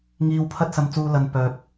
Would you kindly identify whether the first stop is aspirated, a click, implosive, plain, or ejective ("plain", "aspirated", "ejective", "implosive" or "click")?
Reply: aspirated